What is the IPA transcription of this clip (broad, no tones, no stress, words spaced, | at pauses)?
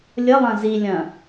lʲəlˠɐ̃ zilʲɐ̃